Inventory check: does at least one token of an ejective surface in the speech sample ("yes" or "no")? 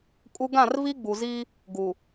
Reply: yes